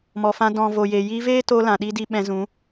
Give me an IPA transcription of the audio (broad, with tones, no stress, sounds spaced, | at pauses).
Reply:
m ɔ˨ f ã˧ d ɔ̃˨ v o˨ j e˨ j i˧ v eː˦ t o˧ l ã˨ ɗ i˧ d i˧ ɓ ɛ̃˧ z ũ˨˦